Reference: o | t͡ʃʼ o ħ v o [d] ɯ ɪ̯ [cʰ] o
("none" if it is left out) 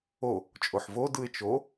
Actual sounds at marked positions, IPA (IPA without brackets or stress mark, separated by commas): d, t͡ʃ